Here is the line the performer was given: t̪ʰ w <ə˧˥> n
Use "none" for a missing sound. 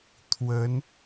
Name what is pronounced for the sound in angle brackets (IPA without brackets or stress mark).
ə˧˥